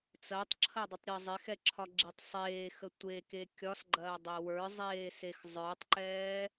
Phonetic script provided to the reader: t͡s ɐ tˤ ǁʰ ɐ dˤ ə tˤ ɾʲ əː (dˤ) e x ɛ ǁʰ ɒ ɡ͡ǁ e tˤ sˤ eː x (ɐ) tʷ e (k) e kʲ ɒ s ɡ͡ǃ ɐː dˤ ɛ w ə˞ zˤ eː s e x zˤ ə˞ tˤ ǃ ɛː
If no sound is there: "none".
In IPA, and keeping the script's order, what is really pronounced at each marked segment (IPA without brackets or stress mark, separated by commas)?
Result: zˤ, ə, k